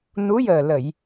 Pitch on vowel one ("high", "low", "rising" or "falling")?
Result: rising